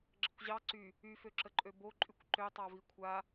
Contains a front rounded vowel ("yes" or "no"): yes